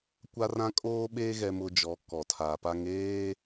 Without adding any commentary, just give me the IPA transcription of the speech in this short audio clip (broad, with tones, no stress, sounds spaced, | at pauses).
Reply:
kʷ a˦ r ã˦ kʼ oː˦ ɓ eː˦ ɣ ɛ˦ m ʊ˦ d͡ʒ ɔ˨˦ k ɔ˨ tʰ a˨ p a˦ ŋ eː˦